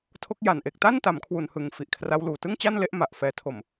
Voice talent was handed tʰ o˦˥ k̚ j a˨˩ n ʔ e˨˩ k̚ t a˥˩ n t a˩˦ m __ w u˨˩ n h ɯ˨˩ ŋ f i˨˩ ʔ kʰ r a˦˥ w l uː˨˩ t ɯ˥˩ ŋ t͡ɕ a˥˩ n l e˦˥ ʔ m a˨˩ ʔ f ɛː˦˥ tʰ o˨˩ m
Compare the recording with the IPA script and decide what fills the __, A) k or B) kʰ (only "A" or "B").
B